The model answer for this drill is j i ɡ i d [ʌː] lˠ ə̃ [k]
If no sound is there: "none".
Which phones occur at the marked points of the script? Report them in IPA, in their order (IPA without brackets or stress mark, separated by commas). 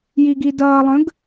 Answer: ʌː, ɡ